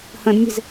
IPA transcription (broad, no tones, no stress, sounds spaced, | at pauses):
h ə̃ d mʲ e̤ z